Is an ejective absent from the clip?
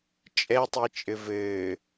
no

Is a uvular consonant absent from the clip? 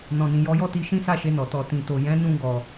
yes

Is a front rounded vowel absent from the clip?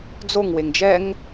yes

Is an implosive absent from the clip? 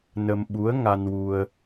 no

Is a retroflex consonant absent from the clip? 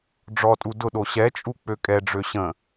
no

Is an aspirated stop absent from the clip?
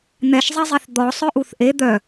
yes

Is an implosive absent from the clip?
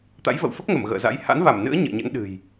no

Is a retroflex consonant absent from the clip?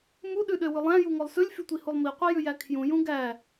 yes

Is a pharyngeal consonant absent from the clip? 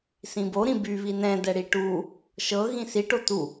yes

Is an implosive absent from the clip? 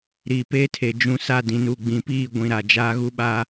no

